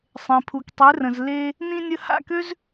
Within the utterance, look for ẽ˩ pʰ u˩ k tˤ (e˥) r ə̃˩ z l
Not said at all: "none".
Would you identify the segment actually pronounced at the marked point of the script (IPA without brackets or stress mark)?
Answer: e˩˥